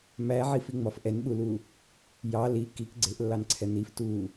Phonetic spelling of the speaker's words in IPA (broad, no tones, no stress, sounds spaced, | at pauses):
m æ ʕ i f i ŋ͡m ɒ f ʔ ɛ n ɓ u l u | j ɑ l i k i k ɡ͡ǀ ɪ ʔ lː ɑ n ǀʰ ɛ n i f t u